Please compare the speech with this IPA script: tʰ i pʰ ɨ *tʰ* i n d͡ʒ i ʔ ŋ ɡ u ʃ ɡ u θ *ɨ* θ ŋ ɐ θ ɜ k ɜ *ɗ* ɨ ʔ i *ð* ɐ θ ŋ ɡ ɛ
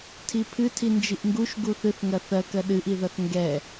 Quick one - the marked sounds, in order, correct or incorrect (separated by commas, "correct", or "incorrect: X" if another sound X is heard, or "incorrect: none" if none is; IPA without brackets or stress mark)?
correct, correct, correct, correct